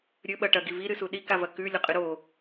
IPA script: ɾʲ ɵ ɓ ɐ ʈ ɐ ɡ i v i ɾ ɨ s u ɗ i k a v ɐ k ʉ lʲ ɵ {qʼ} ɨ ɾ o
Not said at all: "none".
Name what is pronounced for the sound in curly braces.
qʼ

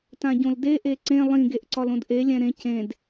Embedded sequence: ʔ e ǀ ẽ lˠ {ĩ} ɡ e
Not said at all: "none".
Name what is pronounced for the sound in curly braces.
ĩ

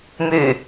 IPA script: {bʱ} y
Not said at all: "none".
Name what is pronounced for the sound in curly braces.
m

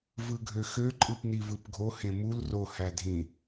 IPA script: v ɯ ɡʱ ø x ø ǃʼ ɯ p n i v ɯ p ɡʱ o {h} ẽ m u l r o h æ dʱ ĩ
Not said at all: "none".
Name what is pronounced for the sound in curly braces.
h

